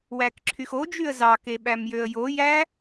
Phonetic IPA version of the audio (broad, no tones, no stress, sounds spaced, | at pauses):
w æ k ǁʰ y x o d͡ʒ y ə̯ z ɑ k e ɓ æ m j ø ə̯ j o j æ